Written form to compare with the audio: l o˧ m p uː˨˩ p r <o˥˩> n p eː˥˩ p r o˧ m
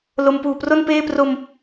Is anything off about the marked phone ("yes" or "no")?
no